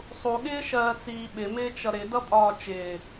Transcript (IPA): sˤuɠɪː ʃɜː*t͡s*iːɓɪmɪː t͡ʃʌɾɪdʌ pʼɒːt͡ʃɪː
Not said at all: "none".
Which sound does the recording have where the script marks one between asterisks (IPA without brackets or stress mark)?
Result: t͡s